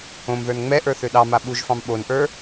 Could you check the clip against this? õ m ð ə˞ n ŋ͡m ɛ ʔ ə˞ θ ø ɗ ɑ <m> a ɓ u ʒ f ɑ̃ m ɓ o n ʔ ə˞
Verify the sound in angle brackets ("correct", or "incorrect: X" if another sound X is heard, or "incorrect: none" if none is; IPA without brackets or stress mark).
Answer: correct